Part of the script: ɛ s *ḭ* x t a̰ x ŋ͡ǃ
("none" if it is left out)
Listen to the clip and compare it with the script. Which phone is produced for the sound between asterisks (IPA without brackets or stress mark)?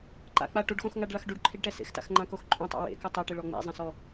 ḛ